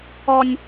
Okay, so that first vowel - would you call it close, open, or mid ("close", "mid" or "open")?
mid